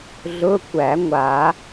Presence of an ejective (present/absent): absent